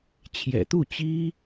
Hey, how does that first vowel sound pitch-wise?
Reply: low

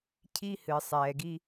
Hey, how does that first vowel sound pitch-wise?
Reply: high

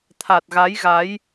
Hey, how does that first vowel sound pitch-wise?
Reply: low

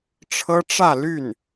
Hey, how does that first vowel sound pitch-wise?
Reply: high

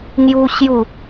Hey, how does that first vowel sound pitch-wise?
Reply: high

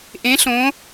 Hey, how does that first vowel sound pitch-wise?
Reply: rising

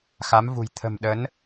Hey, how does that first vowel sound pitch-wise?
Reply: rising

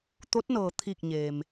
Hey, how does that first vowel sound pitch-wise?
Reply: rising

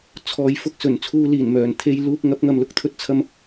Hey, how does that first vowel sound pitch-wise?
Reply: low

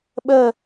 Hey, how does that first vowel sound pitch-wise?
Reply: falling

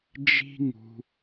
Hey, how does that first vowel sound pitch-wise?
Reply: high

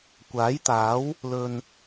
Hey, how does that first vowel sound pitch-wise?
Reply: rising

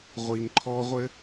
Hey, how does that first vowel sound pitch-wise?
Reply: low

